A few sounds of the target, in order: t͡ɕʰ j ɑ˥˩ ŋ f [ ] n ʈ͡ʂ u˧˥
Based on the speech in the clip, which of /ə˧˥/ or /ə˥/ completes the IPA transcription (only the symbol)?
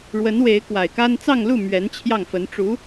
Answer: ə˧˥